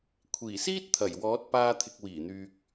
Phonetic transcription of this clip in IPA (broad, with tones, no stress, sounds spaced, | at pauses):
kʷʰ iː˨˩ s iː˥ t̚ t̪ʰ ɐ˨˩ j w ɔː˨˥ t̚ p aː˧ t̪ʰ ɪ˨ k̚ w iː˨˩ n̪ yː˨ k̚